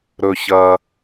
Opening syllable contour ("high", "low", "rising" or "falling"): low